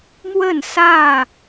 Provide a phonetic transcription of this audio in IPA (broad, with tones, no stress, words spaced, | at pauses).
mwə˥˨n sä˥˨